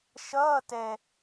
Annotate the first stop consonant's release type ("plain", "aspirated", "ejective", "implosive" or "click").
plain